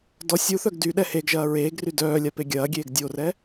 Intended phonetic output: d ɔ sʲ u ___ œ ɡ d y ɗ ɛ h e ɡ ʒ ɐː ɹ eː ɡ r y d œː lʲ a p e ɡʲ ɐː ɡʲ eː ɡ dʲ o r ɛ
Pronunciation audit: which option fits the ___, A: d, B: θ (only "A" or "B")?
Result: B